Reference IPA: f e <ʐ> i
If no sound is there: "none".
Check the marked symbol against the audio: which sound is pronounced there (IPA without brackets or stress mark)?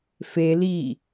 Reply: l